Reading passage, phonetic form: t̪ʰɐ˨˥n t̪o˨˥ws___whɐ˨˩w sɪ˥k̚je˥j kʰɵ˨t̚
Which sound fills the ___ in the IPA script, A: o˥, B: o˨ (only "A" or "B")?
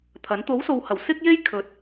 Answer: B